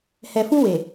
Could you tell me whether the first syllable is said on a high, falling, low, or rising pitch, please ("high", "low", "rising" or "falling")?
low